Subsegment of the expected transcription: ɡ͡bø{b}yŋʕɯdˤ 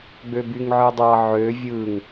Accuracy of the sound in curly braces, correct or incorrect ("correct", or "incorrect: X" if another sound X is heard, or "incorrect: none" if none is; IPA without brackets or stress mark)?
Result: correct